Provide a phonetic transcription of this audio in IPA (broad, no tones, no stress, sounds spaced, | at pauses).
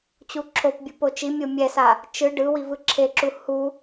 t͡ɕ u ǁʰ o p bʲ u p o t͡ʃ i mʲ o mʲ ɛ s a | t͡ʃ ɯ ɖ ɯ w i v ɯ ǁʰ e ǁ u h u